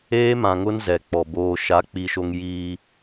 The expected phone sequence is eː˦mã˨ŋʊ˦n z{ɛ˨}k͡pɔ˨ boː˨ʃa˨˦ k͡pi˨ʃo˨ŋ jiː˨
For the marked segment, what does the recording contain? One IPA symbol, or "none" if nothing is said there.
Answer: ɛ˨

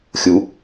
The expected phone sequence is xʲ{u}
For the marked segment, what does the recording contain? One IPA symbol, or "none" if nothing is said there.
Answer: u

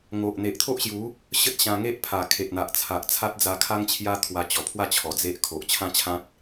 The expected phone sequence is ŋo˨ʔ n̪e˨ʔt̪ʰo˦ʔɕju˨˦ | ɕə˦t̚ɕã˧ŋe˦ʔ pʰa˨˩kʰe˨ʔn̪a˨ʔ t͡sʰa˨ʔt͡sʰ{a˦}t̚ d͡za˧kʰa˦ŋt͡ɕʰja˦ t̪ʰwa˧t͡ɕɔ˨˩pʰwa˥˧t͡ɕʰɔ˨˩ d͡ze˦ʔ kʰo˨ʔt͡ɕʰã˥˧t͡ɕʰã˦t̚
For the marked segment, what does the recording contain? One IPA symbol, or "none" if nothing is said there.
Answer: a˦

